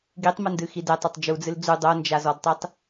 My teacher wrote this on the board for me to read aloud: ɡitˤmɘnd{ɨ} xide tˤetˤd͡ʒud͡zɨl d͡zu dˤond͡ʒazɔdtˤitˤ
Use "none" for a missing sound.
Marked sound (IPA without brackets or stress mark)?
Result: ɨ